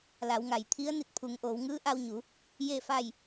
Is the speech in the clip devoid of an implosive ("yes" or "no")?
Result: yes